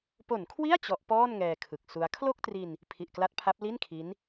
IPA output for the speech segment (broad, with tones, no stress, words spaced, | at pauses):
po˨˩nkʰwi˥˩a̯ t͡ɕɔ˦˥ʔpɔː˥˩nŋɛː˧ kʰɯ˨˩k̚su˦˥a̯ kʰlo˥˩k̚tri˧n | pʰi˨˩ʔkla˦˥t̚pʰa˦˥p̚ li˥˩nkʰi˦˥n